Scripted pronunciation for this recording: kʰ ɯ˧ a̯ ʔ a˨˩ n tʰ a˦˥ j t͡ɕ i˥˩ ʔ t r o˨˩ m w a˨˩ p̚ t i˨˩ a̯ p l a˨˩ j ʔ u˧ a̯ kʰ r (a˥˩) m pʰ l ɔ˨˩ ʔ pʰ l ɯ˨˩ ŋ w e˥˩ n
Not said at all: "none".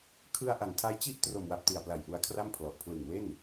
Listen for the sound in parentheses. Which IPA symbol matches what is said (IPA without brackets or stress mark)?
a˥˩